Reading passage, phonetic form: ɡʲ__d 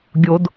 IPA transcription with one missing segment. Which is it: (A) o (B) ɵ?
A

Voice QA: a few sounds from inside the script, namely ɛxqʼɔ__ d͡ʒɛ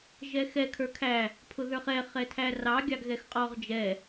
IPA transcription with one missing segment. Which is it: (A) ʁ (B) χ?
A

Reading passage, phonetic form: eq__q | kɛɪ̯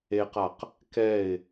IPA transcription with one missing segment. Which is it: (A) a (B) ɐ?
A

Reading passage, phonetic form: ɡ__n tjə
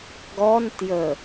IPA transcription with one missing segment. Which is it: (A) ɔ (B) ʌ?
A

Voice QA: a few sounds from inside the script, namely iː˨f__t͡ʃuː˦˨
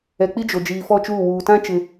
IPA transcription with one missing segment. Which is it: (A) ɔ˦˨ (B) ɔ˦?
A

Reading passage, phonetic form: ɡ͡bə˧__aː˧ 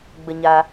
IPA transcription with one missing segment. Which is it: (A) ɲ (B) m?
A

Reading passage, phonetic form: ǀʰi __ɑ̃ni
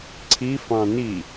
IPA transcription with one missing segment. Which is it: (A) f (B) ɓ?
A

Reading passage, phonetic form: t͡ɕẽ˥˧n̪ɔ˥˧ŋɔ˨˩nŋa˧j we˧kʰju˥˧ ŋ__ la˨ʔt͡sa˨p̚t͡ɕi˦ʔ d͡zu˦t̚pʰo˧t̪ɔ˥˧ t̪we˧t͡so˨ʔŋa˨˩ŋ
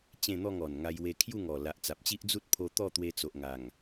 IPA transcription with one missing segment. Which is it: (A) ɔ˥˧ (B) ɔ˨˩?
B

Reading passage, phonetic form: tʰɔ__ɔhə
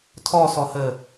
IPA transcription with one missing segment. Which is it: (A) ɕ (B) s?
B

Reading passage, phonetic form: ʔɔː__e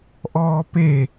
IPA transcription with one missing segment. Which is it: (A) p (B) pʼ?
A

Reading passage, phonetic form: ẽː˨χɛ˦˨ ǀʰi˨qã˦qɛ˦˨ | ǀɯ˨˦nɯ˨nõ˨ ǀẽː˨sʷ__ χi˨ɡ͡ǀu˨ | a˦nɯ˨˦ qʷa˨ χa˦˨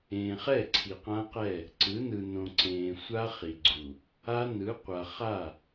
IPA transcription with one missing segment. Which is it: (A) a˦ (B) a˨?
A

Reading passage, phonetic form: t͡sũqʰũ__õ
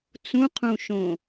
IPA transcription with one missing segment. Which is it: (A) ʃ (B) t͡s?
A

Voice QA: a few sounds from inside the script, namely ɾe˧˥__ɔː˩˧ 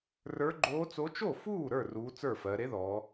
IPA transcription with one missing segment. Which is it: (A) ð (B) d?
A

